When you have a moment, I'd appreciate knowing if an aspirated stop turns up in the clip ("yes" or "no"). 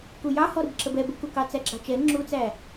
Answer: no